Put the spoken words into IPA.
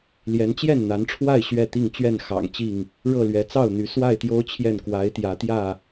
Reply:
l j ɛ˨˦ n t͡ɕ j ɛ˥˨ n n̪ a˨˦ n ʈ͡ʂʰ w a˥˨ ɪ̯ ɕ ɥ ɛ˥˨ t̪ i˥˨ ŋ t͡ɕ ɥ ɛ˥˨ n x ɑ̰˨˩ ŋ t͡ɕ i˥˨ ŋ | ɻ ɤ˥˨ l ɥ ɛ˨˦ t͡s ɑ˥˨ ʊ̯ n̪ y˨˦ s w a˥˨ ɪ̯ t̪ j o˦ ʊ̯ t͡ɕʰ j ɛ˥˨ n k w a˨˦ ɪ̯ t̪ j ä˨˦ t̪ j ä˥˨

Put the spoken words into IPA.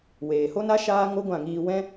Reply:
w eː˨ h o˦ n a˦ ʃ aː˧ ŋ o˦ ɡʷ ã˦˨ ŋ iː˧ w ɛ̃˦

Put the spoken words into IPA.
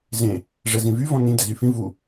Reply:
z ẽ | ʐ ɛ z ĩ v y v ɔ̃ n ĩ d ɛ z y f ĩ v u

